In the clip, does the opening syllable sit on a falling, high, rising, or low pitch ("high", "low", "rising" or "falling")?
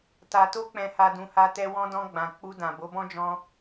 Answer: low